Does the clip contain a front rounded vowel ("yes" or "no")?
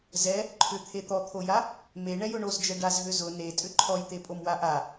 yes